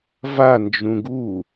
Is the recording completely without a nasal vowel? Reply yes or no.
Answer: no